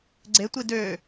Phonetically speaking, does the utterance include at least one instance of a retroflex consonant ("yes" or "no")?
no